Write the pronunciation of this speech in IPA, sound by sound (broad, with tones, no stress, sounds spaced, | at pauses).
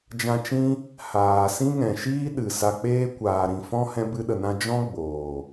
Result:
d͡ʒ ã˧ t͡ʃ ĩ˦ | h aː˨ s ĩ˦ ŋ ɛ̃˨ ʃ iː˦ ɗ ɨ˨ s a˨ k͡p eː˧ kʷ aː˨ ɾ ĩ˨ f ɔ̃˦ h ɛ̃˦ b ɨ˦ ɗ ə˧ n ã˦ d͡ʒ ɔ̃˦ ɡ͡b oː˨